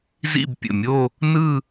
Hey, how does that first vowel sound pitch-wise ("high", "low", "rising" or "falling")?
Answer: falling